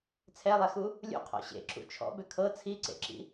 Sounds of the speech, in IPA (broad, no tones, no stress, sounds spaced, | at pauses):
t͡sʰ ɛ lˠ ɛ x u | lʲ ṵ qʰ ɔ̰ ɕ ḛ ǁ ṵ t͡ʃʰ ɔ̰ b ʏ kʰ ɤ t͡sʰ i ǀ ḛ ǁ ḭ